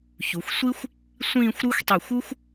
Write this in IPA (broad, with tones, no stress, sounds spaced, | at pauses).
ç u˩˧ xʷ sʷ i˥ xʷ | sʷ ĩː˥˧ xʷ ɾ u˥ xʷ tˤ y˧˩ xʷ u˥ xʷ